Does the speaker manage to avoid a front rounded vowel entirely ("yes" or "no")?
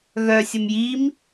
no